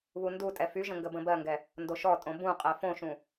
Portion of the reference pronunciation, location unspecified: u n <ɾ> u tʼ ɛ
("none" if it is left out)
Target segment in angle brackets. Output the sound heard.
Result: d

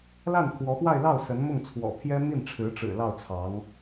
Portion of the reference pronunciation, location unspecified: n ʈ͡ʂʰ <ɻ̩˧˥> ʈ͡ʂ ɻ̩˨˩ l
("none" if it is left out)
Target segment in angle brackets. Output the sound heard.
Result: ɻ̩˧˥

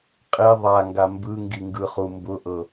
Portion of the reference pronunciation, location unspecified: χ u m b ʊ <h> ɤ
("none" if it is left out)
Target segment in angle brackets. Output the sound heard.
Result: ʔ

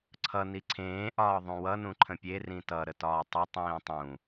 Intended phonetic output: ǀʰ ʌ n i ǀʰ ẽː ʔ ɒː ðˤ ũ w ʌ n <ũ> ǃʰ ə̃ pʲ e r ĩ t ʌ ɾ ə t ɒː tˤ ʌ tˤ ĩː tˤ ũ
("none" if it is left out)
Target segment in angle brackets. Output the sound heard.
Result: ũ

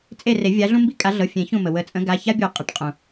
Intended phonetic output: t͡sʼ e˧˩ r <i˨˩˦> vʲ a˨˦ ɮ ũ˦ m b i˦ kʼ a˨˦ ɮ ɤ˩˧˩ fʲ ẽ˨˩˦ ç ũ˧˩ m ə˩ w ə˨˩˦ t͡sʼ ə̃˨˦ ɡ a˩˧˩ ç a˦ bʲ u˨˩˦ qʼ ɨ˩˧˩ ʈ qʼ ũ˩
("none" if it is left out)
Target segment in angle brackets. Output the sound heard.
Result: e˨˩˦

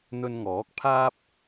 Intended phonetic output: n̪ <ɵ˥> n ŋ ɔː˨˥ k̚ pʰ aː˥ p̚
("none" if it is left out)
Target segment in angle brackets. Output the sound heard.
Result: ɵ˧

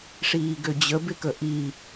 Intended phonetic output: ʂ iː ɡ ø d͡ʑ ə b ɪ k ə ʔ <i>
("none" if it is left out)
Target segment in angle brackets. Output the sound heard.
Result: i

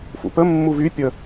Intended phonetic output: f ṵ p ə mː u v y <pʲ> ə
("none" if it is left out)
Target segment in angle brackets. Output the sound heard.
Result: pʲ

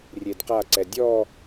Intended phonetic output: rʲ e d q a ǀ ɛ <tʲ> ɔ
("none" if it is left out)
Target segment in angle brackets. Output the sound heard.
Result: dʲ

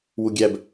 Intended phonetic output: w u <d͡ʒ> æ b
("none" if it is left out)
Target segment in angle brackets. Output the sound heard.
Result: ɡʲ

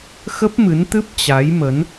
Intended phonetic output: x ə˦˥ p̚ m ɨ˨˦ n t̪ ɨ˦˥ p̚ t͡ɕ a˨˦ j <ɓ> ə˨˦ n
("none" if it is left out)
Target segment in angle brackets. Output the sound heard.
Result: m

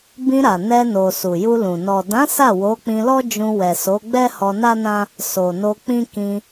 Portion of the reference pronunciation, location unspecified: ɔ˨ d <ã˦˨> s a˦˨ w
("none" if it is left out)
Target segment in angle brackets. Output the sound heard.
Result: ã˨˦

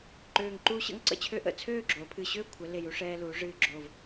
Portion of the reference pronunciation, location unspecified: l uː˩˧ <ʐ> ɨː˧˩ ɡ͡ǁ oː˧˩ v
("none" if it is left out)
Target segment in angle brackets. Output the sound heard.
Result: ʐ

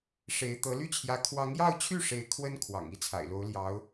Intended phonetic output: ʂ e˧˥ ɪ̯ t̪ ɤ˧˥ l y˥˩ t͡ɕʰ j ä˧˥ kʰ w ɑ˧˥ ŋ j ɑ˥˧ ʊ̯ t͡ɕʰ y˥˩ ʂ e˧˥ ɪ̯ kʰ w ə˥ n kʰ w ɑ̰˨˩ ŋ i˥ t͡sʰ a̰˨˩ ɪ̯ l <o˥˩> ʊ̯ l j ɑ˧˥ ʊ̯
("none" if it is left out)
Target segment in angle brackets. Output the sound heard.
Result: o˧˥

